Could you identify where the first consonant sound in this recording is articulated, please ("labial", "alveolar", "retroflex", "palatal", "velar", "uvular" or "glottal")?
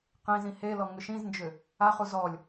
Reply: uvular